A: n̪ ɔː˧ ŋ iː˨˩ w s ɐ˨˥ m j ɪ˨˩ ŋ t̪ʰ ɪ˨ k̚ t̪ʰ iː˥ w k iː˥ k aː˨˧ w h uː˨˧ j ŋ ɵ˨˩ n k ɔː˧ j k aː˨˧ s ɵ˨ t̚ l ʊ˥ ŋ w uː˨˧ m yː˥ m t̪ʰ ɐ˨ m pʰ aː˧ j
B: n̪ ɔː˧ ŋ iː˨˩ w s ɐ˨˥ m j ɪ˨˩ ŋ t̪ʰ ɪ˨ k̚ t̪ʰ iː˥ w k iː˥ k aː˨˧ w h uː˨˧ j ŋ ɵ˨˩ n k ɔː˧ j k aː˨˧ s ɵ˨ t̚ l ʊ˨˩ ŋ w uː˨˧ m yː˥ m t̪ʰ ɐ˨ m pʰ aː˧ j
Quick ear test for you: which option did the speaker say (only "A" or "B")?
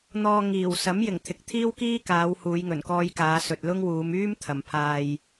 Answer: A